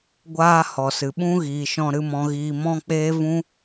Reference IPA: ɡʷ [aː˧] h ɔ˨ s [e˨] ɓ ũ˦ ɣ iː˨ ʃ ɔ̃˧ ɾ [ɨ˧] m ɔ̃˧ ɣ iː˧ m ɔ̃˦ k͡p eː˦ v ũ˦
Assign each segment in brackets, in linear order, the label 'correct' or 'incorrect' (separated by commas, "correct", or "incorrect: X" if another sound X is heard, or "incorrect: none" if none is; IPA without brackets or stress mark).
correct, incorrect: ɨ˨, correct